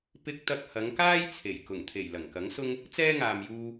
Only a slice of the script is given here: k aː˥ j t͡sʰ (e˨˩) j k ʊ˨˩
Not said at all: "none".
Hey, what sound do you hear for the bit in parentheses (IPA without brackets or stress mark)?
e˨˩